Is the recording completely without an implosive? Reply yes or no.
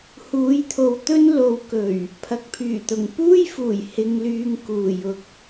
yes